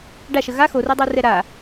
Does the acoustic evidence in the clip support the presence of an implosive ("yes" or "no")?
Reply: no